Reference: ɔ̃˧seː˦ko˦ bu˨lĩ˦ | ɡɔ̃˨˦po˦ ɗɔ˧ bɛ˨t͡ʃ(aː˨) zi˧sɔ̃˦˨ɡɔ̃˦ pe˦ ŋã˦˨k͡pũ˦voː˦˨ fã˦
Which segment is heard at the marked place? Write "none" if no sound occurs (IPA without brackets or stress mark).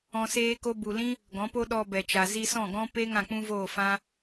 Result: a˨